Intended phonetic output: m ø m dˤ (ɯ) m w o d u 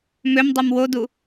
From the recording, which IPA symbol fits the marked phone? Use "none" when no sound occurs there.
u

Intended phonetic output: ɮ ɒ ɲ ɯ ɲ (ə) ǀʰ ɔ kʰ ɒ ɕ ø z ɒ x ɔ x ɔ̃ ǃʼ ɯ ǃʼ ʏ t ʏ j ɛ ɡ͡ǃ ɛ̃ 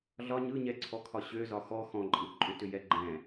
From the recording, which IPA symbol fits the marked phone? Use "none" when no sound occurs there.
ɛ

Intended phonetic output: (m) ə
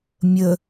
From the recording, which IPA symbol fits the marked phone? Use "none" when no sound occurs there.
mʲ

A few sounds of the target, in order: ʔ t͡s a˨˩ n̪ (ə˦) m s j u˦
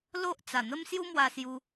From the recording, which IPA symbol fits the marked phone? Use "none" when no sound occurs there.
ə˦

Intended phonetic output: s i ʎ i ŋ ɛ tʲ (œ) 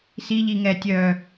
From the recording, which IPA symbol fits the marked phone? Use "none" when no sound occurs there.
œ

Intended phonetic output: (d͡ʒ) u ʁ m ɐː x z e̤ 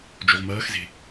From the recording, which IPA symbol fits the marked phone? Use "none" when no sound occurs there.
d͡ʒ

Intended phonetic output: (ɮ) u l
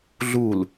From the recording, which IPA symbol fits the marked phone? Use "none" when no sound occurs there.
ɮ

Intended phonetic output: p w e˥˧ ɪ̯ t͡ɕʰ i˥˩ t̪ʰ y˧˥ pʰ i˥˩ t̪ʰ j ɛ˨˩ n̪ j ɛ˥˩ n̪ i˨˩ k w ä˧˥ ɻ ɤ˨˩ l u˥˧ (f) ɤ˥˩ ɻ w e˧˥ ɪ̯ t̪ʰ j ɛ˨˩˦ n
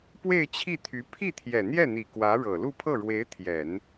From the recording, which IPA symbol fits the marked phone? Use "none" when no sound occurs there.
pʰ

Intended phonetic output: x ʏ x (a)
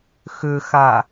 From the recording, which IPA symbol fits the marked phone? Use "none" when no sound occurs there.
a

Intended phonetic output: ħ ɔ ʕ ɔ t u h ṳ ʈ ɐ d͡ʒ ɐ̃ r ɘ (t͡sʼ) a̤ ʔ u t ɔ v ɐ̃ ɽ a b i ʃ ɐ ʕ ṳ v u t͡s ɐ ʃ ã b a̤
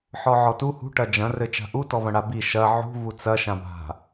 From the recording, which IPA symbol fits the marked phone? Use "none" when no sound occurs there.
t͡ʃ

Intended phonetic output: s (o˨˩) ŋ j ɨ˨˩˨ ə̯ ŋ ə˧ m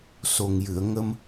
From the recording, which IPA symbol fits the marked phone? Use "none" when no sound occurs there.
o˨˩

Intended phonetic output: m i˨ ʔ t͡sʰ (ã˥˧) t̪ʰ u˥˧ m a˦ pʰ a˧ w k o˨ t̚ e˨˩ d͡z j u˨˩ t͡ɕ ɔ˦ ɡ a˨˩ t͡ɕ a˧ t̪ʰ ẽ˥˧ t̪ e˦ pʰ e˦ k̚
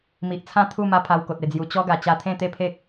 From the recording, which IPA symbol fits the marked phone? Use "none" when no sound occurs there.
ã˥˧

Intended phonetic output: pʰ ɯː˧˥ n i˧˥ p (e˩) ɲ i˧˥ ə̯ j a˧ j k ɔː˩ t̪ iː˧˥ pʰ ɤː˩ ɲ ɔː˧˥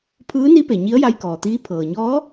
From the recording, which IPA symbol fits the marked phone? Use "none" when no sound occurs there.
e˩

